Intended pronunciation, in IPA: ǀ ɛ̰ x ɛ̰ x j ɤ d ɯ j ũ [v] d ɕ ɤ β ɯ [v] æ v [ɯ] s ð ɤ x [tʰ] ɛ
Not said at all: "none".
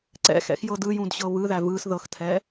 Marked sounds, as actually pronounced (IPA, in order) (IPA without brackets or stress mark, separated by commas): none, ð, ɯ, tʰ